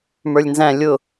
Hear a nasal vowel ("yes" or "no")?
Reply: yes